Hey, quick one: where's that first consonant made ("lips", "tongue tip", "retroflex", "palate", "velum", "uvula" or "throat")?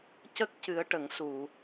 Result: palate